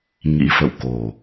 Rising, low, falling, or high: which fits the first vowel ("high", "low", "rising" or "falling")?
rising